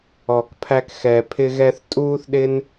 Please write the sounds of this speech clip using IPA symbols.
ɔ˨ k pʰ æ˧ k x ɛ˨ pʰ ɪ˧ ɣ ɛ˧ θ tʼ uː˧ θ ɗ ɪ˧ n

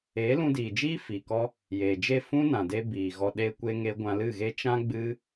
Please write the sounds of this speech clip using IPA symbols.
eː˨˦ l ũ˧ d iː˨ d͡ʒ iː˦ f iː˨ k ɔ˦ | j eː˨ d͡ʒ e˦˨ f ũ˦ n ã˨ d e˧ b iː˨ ɣ ɔ˧ ɗ eː˦ kʷ e˦ ŋ eː˦ ɡʷ ã˧ l ɨ˦˨ ɣ e˦ t͡ʃ ã˦ ɡ͡b ɨ˦

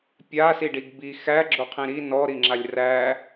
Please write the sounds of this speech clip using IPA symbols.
pʲ a s i ɖ i ɡ b i x æ ɡ͡ǁ o qʰ ĩ ɾ i n ɔ ɾ i ŋ͡ǁ a lʲ r æ

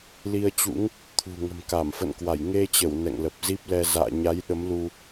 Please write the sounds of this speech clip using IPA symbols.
l i˧ ə̯ t͡ɕ ṵ˧˥ ŋ | t̪ʰ ṳ˨˩ ŋ ə̤˨˩ m k a˧˩ m f ə̰˧˨ n k w a˧˩ j ŋ e˧ t͡ɕ ə˧˩ w n ɛ̰˧˨ ŋ l ə˨˩ p̚ z i˦˥ p̚ l ɛ˧ z a̰ː˧˨ ɲ a˨˦ j ɗ ə˨˦ m l u˧

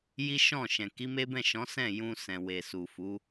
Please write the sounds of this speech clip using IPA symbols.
j i˦ ʃ ɔ̃˦˨ ʃ ɛ̃˨ k i˨˦ m e˦ b ɛ̃˦˨ ʃ ɔ̃˨˦ s ɛ̃˦˨ j ũ˧ s ɛ̃˨ w e˨ s u˨ f u˨˦

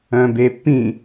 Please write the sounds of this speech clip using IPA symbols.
œ̃ b e pː ĩ

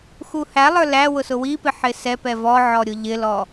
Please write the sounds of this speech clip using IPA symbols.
x u h æ lˠ ə˞ l æ w ʊ s ʊ w i p ɪ ħ ɪ s ɛ p ɛ v ɔ ʕ ɔ ɾʲ ʊ ʎ ɪ l ɔ

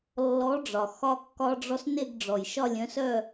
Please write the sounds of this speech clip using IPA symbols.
lː ɔ˨˥ ɖ͡ʐ ɒ˩ x ɒ˧ kː ɒ˧ ɖ͡ʐ ɔ˧ s n e˥˧ ɡ ɖ͡ʐ ɔ˩ j ʃ ɒ˥˧ lʲ œ̃˨˥ s œ˥˧

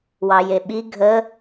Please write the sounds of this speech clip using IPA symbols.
w ɑ j e ɓ i ɡʱ ə

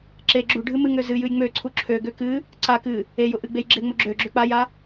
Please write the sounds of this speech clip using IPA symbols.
ǁ e ɡ͡ǁ u ɖʱ ɨ m ɨ ŋ ø z ɨ j ɨ j ŋ͡m ø ǀʰ u ǁʰ ø ɡ ø k ɨ | ǀ a k ɨ | e j ʊ ʔ ɨ ɡ͡b e j ɡ͡ǁ e ŋ͡m ʊ ɡ͡ǁ ø ɡ͡ǁ ø k͡p a j a

